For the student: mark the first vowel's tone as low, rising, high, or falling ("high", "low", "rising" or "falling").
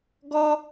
high